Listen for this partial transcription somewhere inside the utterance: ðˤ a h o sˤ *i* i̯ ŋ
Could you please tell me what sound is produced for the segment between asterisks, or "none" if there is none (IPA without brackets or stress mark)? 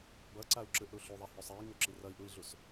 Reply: e